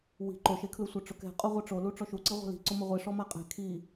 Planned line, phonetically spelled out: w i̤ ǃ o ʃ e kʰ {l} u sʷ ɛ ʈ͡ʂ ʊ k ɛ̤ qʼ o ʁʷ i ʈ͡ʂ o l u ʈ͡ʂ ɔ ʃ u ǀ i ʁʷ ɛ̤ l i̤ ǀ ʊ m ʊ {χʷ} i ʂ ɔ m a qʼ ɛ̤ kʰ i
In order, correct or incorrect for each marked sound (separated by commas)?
correct, incorrect